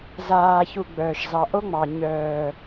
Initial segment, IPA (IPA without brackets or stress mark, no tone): z